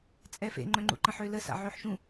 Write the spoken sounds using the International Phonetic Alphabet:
t͡sʼɛfḛ ŋ͡ǃœ̃ŋ͡ǃṵǃə̃ħø ləsa̰ ʕøħʃũ

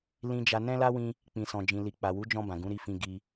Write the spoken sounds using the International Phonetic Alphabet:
lĩ˧d͡ʒa˧ nɛ̃˦la˦wĩ˧ | k͡pĩ˨sɔ̃˨d͡ʒĩ˨li˨ k͡pa˨wu˨˦d͡ʒɔ̃˧ bã˨ɡũ˨˦ɾi˦˨fĩ˧ ɡi˧

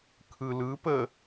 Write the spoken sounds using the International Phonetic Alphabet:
kʰɯ lɯ pə

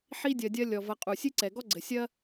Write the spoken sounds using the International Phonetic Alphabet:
ħi˦ dʲɐ˧dʲɐ˦ lʲɔ˨vɐ˧qʼu˨ sʲɨ˦ǀɛ˨ɡɔ˦ɡ͡ǀɘ˨ sʲɐ˦

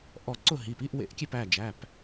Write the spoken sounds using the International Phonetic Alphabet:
ʔɔ˧˩ǀʊ˥˩ ɦi˩˧˩pi˧˥˧ʔwḛ˧˥˧ʔkʲe˥˩p æ˩˧˩d͡ʒæ˩˧˩p

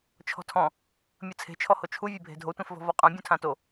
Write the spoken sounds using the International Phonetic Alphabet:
t͡ʃʰɔ̤tʰɔ̃ | mʲɯt͡sʰe̤t͡ʃʰɔho t͡ʃʰuvʲebʱe̤ dʱotʷẽfvɔ̤ vɔqʼã bʲũtʰãto

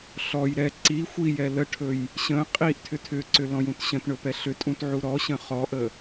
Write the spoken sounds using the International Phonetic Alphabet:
ɬɔj ɾɛ ǀi xʷijɛ ləʈʰɵj | ɕə̃ qʼiʔ tʰʏtʰʏǀʏ lɔ̃jũtɕə̃tɳɵ pɛɬʏtʼũt ʕuɾɔɕə̃ χɔʔə

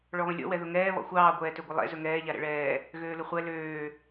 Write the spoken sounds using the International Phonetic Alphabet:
ɭɔβə̃lʲɔ̰ wɛðʊŋɛː βɔ̰xʷɑː ɡʷɛːtøɡʷəlˠɛ̰ zɵŋɛː ʎaɾɛ̰ɭɛː | ɣøːlʊχʷɛ løː

